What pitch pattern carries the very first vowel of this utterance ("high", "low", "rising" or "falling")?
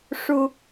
high